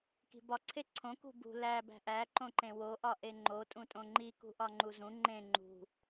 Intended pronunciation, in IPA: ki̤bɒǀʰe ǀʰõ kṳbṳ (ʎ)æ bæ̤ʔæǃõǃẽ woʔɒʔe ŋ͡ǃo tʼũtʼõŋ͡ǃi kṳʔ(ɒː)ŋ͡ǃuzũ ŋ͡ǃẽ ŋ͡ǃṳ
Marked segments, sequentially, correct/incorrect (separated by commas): incorrect, incorrect